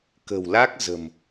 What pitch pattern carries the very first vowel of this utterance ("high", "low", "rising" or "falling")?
low